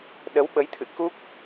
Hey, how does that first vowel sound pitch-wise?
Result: rising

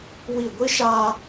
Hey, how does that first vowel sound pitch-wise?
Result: falling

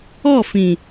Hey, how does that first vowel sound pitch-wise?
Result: falling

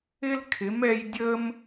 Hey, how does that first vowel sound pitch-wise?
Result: high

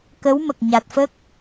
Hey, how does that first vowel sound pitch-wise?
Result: rising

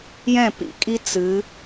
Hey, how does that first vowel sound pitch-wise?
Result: falling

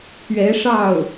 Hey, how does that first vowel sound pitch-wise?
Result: rising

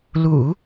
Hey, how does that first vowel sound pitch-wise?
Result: low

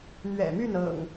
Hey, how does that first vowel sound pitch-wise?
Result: low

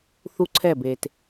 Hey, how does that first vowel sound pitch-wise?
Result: high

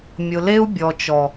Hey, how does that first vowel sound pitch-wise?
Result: low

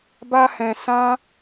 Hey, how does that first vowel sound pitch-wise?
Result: high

